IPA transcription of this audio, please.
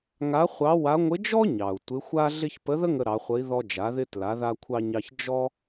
ŋa˧˥ χʷɑ˧˥ wa˧˥ ŋʷɪ˧˥d͡ʒɔ˥ɲɑ˩u̯ tʷɪ˧˥xʷa˥ ɮɪ˥ç pə˧˥ðə˥ŋə˧ ɾɑ˩˧χʷə˧˥i̯ ðɔ˧ d͡ʒa˩˧ðɪ˧ tla˩˧ða˧kʷʰɑ˧ɲɑ˧ç d͡ʒɔ˥

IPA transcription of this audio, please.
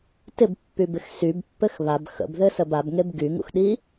tɪbpːybɪx sybpːɘx βab xə̰bðɘsəb abŋeb ɡyŋṵxɗi

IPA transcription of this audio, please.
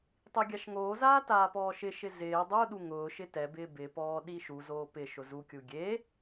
tˤiɡʲaʃŋoːzaː taːpɔːʃɪʃɪ zɪː dˤuɗu ŋʊːʃɪ tɛbɪː bɪpɔː ɗiʃuzoː pɪ ʃʊzukʲu ɡʲe

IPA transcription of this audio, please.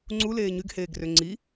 ŋ͡ǀu leːɲyɡheːɡrø ŋ͡ǀi

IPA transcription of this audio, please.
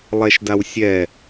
lˠɛʃdawsʲɛ

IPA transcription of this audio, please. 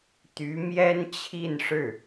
t̪y˧˥mjɛ˥nt͡ɕʰi˥˧n ʂɻ̩˥˩

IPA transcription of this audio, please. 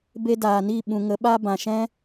be˧daː˨ ni˦˨ɓũ˨ŋə˨˦ ɓa˧bã˨ʃɛ̃˦

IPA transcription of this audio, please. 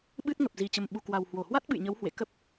ɓɨ˦˥t̚ŋə˨˩p̚ zi˨˩t͡ɕə˨˩m ɓu˨˩kwa˨˩whwo˧˩hwa˦˥t̚ ɓɨ̰˧˨jɲə˨˦w hwḛ˧˨kə˦˥p̚

